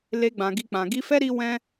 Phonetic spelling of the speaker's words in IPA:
le˧ɡ͡bã˨ ɡi˧k͡pã˨ ɡi˧fɛ˦ ɾi˦wɛ̃˦

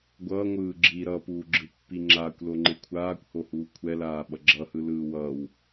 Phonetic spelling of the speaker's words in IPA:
ɡʷʌːŋʷɯː ɡ͡ǁi ɾʌpuːɡ͡ǁɯpːi ŋ͡ǁaːkʷloŋ͡ǃe kʷʰaːkʷhohuː kʷʰɛlaːɓʌ ɡ͡ǁʌhɯlɯː wʌːw

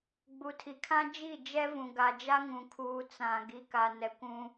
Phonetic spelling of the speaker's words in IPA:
ɡ͡bu˨tʰi˨kʰã˦ d͡ʒi˦˨d͡ʒɛ˦vũ˨ ɡa˨d͡ʒa˦ŋũ˨kʰuː˨ t͡sã˨ ɡi˨ka˨nɛ˨kʷũ˦

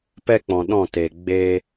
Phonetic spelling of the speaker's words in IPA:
pɛ˦k͡pɔ̃˨ɗɔ̃˦˨te˨ ɡ͡be˧

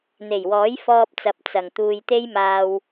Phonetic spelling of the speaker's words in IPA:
n̪e˨˩jwɔː˨˥j fɔː˧p̚t͡sɐ˨p̚ t͡sɐ˨˩ŋ t̪uː˨jt̪e˥jmaː˧w

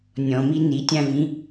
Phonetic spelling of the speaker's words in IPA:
nʲɔ̃mi nitʲãvĩ

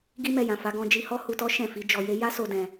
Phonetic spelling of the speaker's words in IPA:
ɡi˦mɛ˧jã˨fa˨˦ ɡɔ̃˦d͡ʒi˦ hɔ˦hu˧tɔ˦ ʃɛ̃˦˨ fi˨˦d͡ʒɔ˧je˦ ja˦so˧ dɛ̃˧

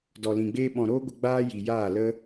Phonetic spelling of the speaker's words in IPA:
dɔ˨lĩ˨ɡ͡beː˧ɓɔ̃˨ ɾoː˦ɡʷə˧ ɡ͡baː˦ji˨jaː˦˨lə˦

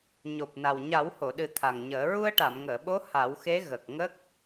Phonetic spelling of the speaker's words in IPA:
ɲo˨˩p̚na˨˩w ɲa˨˩˦who˨˩˨ɗɨ˨˩˦ t̪ʰa˨˩ŋɲəː˨˩˦ ɹu˧ə̯ʈa˨˩˨mŋəː˨˩˨ɓo˧˥ ha˨˩˦wxe˧˥ ɣə˨˩k̚ ŋə˦˥k̚

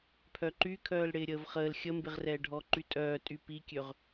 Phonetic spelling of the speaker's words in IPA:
pʰœǃykʰœːl ɽɪːɾʲəːvχəːl xʲəmbɪʁrɛː ɖʱɔǃytʼœː tʼypikʲøʁ

